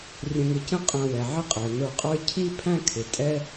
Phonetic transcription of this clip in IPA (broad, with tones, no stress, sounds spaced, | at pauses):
rʲ ə̃˧ ŋ ɪ˧ c ə̃˥ qʼ æ̃˧ w ɛ˩ ʕ ɪ˥ qʼ ɛ˩ n̪ ə˞˧ qʼ ə˞˥ cʰ i˥ pʰ æ̃˥ kʰ ɪ˩ tʼ ɛ˥